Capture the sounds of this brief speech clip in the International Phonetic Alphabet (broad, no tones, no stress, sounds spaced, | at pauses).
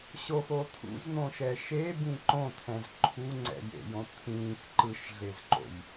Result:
ɕ o x o t̪ʰ ṵ z n̪ õ ʃ ɛ ʃ e b ĩ ǃ õ t̪ʰ ɛ̃ z ǃʰ u ŋ͡ǀ ɛ̰ j ḛ j õ t̪ʰ ĩː x ǃ ɯ ʃ ɮ e z ǃ o̰ j